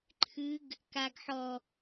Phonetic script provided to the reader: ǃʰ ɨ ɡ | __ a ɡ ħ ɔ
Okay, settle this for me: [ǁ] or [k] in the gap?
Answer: k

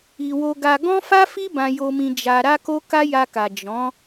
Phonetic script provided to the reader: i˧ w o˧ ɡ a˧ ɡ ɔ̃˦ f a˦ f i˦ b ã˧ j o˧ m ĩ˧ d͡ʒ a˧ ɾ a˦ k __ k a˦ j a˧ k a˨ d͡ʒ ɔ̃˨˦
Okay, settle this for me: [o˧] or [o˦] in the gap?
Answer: o˦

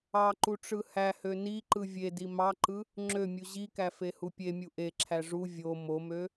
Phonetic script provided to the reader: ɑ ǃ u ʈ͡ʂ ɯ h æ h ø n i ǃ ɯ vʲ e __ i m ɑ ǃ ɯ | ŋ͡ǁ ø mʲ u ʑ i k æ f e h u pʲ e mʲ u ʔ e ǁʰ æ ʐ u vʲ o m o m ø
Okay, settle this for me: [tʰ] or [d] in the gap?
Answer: d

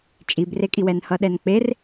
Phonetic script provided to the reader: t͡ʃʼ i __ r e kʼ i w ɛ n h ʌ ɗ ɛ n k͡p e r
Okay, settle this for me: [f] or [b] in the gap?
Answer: b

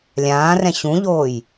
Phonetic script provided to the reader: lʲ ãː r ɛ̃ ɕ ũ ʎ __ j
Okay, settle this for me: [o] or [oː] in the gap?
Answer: oː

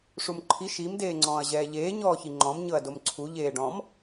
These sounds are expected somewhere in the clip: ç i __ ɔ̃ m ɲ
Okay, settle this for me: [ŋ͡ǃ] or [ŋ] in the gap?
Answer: ŋ͡ǃ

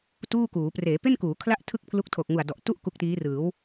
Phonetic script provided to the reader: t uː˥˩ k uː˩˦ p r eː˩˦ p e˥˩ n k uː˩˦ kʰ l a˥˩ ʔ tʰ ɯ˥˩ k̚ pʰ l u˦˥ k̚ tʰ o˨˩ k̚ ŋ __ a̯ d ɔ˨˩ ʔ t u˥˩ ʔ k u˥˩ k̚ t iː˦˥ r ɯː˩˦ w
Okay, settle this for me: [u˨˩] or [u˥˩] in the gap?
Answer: u˨˩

